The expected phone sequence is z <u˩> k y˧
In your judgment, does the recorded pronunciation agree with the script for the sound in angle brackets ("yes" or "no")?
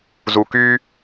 yes